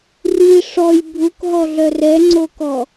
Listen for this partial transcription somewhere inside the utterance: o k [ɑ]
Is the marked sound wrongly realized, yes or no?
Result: yes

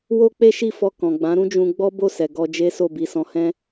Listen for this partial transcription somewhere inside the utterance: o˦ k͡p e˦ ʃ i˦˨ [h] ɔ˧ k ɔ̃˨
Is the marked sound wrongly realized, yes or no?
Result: yes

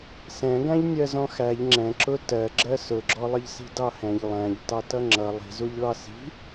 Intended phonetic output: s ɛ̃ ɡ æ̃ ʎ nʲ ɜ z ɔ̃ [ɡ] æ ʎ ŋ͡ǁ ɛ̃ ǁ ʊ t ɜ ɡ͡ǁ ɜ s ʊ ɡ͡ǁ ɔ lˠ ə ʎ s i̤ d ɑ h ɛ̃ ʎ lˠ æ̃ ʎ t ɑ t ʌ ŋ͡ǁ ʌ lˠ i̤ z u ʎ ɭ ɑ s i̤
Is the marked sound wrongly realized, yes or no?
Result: yes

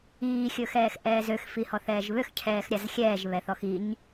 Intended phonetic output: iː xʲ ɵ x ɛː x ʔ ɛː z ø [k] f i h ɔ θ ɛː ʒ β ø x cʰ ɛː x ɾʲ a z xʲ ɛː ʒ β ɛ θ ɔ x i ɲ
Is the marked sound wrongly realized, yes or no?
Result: yes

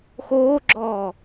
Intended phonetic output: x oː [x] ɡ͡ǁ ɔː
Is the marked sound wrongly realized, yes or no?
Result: yes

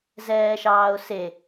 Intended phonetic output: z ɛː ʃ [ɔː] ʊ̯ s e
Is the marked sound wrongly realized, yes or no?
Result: yes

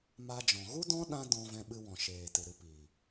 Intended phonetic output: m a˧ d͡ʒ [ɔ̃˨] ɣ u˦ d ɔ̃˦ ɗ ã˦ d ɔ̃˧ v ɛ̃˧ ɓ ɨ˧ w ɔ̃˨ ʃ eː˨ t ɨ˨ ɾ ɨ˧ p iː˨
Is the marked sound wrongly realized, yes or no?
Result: no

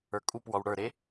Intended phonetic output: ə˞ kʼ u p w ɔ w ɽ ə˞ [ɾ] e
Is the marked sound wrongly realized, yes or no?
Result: no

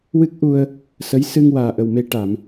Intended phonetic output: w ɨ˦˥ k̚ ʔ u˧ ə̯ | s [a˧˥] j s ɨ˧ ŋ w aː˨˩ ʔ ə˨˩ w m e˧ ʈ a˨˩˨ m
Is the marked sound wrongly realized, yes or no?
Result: yes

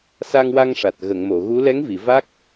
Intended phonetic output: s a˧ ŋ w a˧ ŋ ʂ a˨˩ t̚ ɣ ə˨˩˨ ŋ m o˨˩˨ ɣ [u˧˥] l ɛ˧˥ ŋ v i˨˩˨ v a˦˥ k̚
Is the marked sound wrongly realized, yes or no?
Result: no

